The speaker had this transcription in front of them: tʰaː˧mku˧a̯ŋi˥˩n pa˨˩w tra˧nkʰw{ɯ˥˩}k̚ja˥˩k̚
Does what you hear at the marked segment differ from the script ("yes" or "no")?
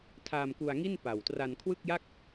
no